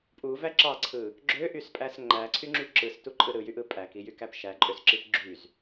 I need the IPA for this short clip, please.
pʼuvæ ǁɑǀʰɯ | ɡ͡ǁøʔyspʼæs ŋ͡ǃæǀʰyŋ͡ǁy ǁɯstuǃʼɯ ɾɯjyʔɯ pʼækijykæp ʃæǃʼøsǁip ɡ͡ǁyz

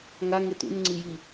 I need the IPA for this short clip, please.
ŋaŋe tṵnŋ͡ǀi ji

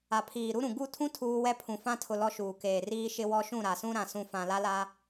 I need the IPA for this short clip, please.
a˨pʰiː˨ɾu˦ɾũ˨ ɡu˦˨tʰũ˦ tʰuː˦ wɛ˦pʰũ˨fã˦tʰʊ˨ lɔ˦ʃuː˨ keː˨riː˦ʃɪ˦wɔ˦ ʃũ˦˨ɾa˨sũ˦ ɾã˨sũ˨ fã˨la˦la˦

